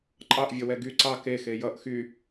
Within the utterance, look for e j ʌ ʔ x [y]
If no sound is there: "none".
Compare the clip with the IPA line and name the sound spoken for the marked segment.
y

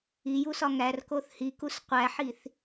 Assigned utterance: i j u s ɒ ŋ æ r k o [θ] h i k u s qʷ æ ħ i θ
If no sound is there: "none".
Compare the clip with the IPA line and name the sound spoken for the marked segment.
θ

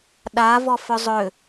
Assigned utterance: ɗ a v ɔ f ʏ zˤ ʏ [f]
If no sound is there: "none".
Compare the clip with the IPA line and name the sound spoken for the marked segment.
none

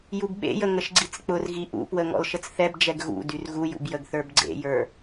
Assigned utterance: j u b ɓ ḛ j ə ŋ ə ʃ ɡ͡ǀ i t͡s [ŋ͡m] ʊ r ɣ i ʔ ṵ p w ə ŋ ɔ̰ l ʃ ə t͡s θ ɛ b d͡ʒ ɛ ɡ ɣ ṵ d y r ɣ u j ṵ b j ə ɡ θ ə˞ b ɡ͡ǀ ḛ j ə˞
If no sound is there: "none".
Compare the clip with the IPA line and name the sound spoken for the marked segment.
k͡p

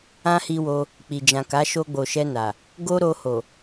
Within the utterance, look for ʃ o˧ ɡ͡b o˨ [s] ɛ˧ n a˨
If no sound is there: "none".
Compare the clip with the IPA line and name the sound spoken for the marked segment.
ʃ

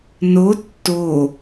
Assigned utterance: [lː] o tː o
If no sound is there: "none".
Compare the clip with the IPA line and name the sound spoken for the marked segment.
n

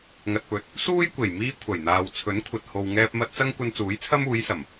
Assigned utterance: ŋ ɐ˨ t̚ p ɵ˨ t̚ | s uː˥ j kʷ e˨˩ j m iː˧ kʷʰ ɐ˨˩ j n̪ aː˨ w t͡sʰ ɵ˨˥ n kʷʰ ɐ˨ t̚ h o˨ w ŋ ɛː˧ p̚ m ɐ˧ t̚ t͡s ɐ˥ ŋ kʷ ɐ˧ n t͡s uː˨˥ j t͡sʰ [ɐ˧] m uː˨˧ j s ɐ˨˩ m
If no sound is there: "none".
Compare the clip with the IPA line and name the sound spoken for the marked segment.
ɐ˥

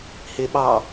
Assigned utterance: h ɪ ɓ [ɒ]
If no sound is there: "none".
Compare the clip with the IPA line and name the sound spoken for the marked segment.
ɑ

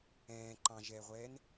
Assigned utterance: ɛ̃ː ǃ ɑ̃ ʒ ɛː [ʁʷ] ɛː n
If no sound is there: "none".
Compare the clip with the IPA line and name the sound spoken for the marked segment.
ʁʷ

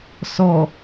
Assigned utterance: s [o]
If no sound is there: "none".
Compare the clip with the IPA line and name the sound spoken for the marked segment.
ɔ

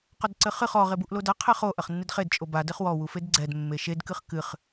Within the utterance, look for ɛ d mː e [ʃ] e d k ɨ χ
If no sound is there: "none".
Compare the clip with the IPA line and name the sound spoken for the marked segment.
ʃ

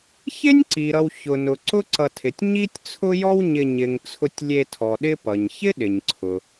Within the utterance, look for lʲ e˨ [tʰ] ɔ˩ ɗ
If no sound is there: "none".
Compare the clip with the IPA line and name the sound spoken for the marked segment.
tʰ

